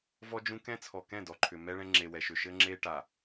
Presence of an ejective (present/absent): absent